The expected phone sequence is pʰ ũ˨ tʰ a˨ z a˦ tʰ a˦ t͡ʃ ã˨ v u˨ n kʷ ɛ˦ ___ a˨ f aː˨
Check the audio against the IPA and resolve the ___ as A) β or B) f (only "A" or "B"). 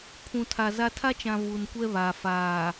A